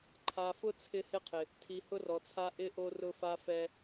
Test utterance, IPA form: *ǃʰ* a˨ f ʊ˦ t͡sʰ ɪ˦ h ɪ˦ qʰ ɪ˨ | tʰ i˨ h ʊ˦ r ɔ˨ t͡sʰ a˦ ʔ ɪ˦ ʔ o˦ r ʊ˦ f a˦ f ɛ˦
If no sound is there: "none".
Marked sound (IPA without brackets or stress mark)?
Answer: ǃʰ